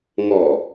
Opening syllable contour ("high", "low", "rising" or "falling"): low